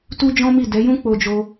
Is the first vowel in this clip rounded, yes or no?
yes